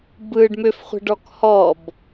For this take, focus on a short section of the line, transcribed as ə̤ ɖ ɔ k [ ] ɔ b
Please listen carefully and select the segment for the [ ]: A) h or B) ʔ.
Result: A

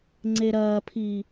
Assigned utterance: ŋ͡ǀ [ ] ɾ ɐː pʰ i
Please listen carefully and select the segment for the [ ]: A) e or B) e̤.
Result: A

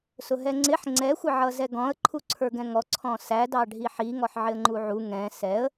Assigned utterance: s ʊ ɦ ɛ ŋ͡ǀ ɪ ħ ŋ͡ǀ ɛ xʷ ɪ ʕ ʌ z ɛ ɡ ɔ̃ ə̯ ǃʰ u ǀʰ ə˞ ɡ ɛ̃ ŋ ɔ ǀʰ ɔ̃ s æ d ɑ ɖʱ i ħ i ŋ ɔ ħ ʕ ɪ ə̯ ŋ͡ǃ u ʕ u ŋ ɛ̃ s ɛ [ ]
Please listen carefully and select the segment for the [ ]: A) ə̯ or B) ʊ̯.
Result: A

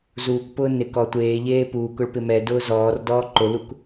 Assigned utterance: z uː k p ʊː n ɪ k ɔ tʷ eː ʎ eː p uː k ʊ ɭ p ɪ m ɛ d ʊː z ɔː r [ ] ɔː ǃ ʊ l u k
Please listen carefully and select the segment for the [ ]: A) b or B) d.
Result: B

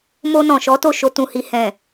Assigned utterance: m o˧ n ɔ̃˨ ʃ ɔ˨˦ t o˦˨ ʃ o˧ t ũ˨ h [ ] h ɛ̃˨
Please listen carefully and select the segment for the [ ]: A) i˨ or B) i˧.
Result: A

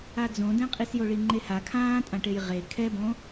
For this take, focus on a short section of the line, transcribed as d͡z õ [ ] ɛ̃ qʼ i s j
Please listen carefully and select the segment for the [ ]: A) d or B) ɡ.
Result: A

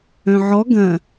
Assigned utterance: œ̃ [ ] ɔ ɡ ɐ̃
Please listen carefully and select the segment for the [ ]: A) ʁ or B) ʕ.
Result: B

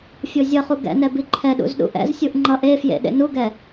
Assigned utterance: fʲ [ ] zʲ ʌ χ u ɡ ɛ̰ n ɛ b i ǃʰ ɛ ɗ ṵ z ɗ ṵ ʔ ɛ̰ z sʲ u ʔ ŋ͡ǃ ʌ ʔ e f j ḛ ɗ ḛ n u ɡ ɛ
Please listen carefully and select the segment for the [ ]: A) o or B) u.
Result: A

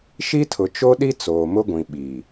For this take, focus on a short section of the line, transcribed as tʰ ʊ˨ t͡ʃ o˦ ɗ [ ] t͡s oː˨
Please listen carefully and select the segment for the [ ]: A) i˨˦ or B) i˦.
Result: B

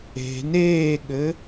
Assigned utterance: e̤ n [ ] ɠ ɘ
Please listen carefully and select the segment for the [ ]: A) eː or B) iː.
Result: A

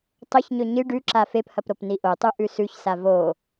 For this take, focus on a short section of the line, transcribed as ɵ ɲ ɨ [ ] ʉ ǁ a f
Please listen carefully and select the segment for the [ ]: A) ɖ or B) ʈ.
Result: A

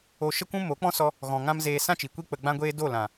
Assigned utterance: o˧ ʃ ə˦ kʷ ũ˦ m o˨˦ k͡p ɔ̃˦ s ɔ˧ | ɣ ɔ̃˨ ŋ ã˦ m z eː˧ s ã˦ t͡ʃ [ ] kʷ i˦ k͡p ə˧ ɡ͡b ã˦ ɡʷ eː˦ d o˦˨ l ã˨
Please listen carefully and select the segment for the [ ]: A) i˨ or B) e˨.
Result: A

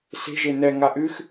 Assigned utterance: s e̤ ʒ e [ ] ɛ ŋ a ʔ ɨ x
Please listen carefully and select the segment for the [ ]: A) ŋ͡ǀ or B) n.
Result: B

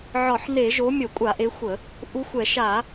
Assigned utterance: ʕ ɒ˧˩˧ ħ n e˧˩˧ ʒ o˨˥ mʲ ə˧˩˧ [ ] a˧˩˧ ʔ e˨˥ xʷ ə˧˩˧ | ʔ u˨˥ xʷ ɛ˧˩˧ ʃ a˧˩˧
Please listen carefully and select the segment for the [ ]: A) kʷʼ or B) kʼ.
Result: A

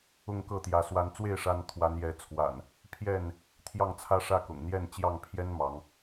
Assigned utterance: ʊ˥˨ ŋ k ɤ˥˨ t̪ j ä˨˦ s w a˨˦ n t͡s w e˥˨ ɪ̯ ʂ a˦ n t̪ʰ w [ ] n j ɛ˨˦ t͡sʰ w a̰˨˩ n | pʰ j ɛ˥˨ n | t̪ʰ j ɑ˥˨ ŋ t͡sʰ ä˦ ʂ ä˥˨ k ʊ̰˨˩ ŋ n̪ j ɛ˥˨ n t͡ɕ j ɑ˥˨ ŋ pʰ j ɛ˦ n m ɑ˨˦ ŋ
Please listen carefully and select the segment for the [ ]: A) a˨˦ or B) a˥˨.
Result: A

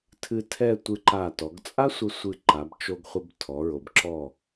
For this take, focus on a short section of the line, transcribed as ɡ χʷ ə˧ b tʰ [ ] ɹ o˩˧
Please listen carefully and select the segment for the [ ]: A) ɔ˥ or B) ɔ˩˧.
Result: B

